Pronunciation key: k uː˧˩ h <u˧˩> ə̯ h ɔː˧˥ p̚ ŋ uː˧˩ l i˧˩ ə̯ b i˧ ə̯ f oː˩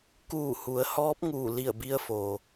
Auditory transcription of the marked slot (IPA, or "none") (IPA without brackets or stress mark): u˩˧